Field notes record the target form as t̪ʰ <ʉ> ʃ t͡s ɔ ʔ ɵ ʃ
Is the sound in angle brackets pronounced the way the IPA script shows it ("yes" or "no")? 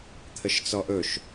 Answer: no